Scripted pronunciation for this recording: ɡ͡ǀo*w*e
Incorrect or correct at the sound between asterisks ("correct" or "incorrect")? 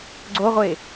incorrect